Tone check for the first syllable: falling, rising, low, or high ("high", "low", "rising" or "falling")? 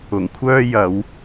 low